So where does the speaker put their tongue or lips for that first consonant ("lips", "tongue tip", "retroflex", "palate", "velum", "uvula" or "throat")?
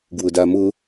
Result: velum